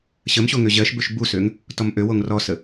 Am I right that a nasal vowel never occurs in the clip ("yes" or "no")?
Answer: yes